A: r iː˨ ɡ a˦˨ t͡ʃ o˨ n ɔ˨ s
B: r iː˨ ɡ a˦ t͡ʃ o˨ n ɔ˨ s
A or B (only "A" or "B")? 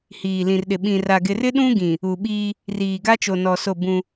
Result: B